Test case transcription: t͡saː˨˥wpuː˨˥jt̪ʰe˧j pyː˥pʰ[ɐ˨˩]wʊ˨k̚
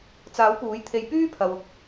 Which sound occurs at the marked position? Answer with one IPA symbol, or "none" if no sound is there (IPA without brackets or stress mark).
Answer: ɐ˨